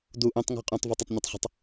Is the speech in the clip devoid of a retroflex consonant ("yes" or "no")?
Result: yes